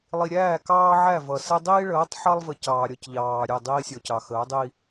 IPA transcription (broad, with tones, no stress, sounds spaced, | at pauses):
lˠ i˨ ɾʲ æː˦˨ k ɑː˦ ʕ æ˦˨ v ʌ˨ s ɛ˦ dˤ iː˦ ɭ əː˨˦ tˤ ħ ɑ˦ lˠ v ə˨ c ɑː˨ ɾʲ ɒ˦ c ʎ ɑː˨ ɾʲ ɛ˦˨ dˤ iː˦ sʲ ɔ˨ c ɑ˨ x əː˨˦ dˤ i˦